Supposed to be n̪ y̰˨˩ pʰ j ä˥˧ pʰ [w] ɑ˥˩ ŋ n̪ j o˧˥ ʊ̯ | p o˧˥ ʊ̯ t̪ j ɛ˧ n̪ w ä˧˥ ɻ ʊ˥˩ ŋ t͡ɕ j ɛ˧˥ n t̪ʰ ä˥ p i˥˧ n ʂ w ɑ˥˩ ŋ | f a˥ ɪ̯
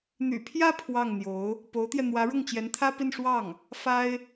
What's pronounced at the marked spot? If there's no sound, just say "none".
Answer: w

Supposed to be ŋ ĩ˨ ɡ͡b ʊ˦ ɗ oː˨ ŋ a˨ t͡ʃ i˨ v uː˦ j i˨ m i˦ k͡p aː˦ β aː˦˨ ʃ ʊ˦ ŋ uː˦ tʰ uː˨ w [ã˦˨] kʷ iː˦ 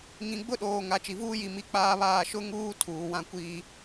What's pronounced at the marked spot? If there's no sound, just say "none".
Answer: ã˦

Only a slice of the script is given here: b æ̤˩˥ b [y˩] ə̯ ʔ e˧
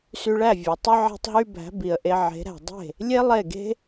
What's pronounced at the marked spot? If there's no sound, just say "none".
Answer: i˩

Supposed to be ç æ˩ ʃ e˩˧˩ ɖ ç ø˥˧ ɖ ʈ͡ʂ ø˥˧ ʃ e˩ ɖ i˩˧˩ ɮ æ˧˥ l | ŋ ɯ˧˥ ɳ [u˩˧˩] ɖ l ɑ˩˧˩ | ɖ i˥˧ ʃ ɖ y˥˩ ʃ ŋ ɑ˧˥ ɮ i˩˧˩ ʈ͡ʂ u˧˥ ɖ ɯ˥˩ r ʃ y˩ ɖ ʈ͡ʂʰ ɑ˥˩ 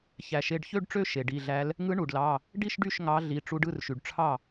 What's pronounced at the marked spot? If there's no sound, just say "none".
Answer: u˩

